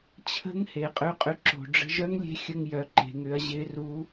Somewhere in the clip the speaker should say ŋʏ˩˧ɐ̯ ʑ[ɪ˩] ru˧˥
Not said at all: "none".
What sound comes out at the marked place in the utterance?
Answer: ɪ˧˥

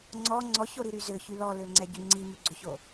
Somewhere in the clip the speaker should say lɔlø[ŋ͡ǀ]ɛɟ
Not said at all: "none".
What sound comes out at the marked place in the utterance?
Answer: ŋ͡ǀ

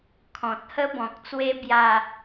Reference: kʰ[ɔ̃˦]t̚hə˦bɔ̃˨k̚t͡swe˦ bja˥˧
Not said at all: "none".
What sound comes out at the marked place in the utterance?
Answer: ɔ̃˨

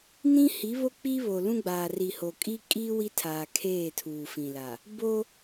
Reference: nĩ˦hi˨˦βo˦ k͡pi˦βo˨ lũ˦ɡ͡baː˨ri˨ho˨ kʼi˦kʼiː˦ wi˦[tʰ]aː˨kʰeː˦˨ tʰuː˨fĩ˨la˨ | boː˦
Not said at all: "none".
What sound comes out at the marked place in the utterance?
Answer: tʰ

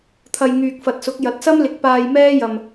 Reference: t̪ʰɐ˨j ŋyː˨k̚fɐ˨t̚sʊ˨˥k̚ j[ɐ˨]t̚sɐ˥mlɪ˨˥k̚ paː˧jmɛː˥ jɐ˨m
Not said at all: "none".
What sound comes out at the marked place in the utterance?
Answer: ɐ˨˥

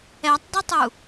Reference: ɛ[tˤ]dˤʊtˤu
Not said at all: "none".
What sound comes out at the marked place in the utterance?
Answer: tˤ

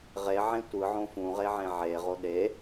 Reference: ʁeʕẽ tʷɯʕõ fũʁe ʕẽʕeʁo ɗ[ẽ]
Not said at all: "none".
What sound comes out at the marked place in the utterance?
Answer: e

